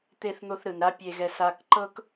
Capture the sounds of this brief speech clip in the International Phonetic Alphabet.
t̪ e˧ θ n̪ o˧ θ ɾ ɯ˩ n ɾ a˥ pʲ e˧ ɣ ɛ˧ s a˧ k ǃ ɤ˥ k

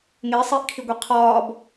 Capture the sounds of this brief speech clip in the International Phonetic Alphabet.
ŋ e sˤ iː ʔ kʰ i ɡʷ i qʰ ɒː b

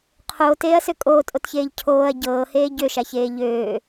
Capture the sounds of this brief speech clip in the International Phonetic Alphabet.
qʰ oː t eː ɐ̯ s ø kʼ oː tʼ o t ç eː ʎ cʰ oː ɐ̯ ɟ ɤː h eː ɟ ø ʃ a ç eː ʎ øː

